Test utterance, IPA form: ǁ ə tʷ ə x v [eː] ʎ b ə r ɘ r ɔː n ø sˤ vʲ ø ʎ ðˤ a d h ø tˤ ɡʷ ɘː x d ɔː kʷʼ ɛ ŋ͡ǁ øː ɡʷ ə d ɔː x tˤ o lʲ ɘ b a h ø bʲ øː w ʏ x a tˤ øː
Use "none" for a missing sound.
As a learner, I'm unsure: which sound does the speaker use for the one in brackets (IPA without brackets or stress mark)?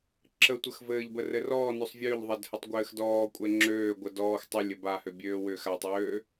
ɘː